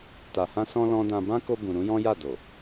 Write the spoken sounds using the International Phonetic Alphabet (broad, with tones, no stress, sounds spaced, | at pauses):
t a˨ h ã˧ s ɔ̃˧ l ɔ̃˦ d ã˧ b ã˦ k o˧ b ũ˨ ɾ ũ˨˦ j ɔ̃˦ j a˦˨ d o˨